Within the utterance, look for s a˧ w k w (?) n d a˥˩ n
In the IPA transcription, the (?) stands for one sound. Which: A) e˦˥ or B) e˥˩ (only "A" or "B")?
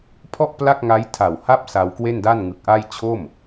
B